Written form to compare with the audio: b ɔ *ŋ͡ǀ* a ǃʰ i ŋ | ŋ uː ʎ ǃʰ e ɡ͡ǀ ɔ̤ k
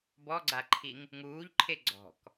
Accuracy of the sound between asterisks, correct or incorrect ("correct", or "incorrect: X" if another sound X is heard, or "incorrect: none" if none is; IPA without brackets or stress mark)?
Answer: incorrect: ɡ͡ǀ